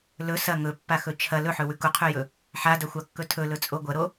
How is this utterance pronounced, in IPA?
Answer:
l ɵ s ɐ ŋ ɵ pː a x ɵ t͡ʃʰ ɐ l ɵ ħ ɵ w ʉ k u qʰ ʉ j ɵ | ħ a d ɐ xʷ a kː ɵ tʰ ɵ l ɵ t͡sʼ o ɡʷ ɐ ɾ o

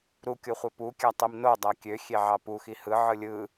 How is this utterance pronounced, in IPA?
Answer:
ɾ u kʲ o χʷ e p u kʲ æ tˤ i m n o dˤ æ kʲ ø xʲ e ʕ ɑ p u x i h ɯ ʕ ɯ lʲ ɯ

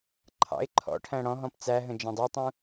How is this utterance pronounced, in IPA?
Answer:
ǃʰ ɑ̰ ɪ̯ ǃʰ ɔ̰ ʈʰ æ̃ ɽ ɔ̃ ɦ ɔ̃ p t͡s æ ɦ ə̃ d͡ʒ ɛ̃ dˤ ɛ tˤ ũ

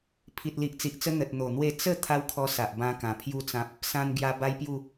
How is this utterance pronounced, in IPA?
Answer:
pʰ i˨ t̚ l i˨ ʔ t͡s i˨ ʔ t͡s ə˦ n̪ ə˨ t̚ n̪ o˨˩ n̪ w e˥˧ t͡s ə˥˧ t̪ʰ a˦ w kʰ ɔ˧ s a˨ ʔ b ã˦ k ã˨˩ pʰ j u˥˧ t͡s ã˦ p̚ | s ã˧ n ɡ j a˧ b a˦ j p j u˥˧

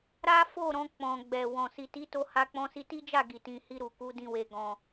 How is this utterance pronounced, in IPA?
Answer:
ɾ a˦ f o˦˨ ɾ ɔ̃˨˦ k͡p ɔ̃˧ ɡ͡b ɛ˨ w ɔ̃˨ s i˨ t i˨˦ t o˧ h a˦ k͡p ɔ̃˧ s i˧ t i˦ d͡ʒ a˦˨ ɡ i˨ t ĩ˨ h i˧ ɾ u˨ k u˨˦ d ĩ˧ w e˨ ɡ ɔ̃˨

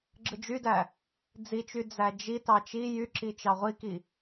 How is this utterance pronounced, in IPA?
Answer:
ɡ͡ǁ ɯ d͡ʒ y d æ | d͡z i t͡ʃ y d͡z æ d͡ʒ i t ɑ t͡ʃ i j y ǁ i t͡ʃ ɑ ʁʷ i k i

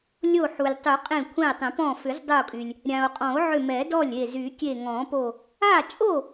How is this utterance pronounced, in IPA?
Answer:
lʲ o˧˩ ħ u˩ lʲ tˤ y˨˩˦ qʼ ẽ˧˩ kʷʰ ɛ̃˧˩ e̯ tˤ ẽ˨˩˦ p ɔ̃˧˩ f ʏ˨˩˦ z dˤ ʏ˧˩ o̯ kʼ y˩ lʲ | ɾʲ ã˩ o̯ qʼ ɔ̃˨˩˦ o̯ ʕ ʏ˧˩ m ɛ˨˩˦ d ɔ˥˩ lʲ e˧˩ z y˨˩˦ kʲ e˧˩ ŋ ɔ̃˨˩˦ p o˧˩ | a˥˩ t͡ʃʼ o˥˩

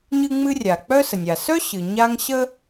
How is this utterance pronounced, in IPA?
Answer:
ɲ ɨ˥ ŋ͡m ɨ˥ rʲ a˩ k͡p œ˥ s ə˩ nʲ a˩ s œ˥ ɕ ɨ˩ ɲ a˥ ŋ ɕ ə˥

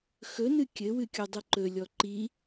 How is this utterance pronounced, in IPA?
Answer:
x ɵ n ɨ kʲ ɘ w ɨ kʲ o dˤ ɨ ǃ ɵ lʲ ɔ ǃ i

